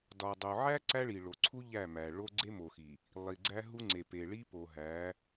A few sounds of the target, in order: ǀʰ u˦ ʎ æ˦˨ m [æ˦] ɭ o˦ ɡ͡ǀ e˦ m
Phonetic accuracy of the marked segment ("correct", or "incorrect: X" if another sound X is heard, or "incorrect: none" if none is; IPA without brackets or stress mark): incorrect: æ˨